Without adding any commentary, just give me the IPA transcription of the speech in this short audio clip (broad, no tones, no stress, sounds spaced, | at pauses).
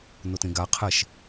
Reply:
n o t ẽ ɡ a qʰ ɛ ʃ